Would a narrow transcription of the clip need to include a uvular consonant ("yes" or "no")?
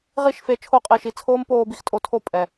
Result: yes